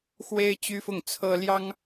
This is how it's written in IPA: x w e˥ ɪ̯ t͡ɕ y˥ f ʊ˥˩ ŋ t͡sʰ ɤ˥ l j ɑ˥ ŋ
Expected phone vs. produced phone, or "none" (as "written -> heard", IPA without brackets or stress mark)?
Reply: none